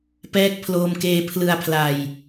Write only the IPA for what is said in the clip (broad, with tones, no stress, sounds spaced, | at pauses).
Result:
p ɛː˦˥ k̚ pʰ l oː˧ m k eː˧ pʰ l ɯ˧ a̯ pʰ l a˧ j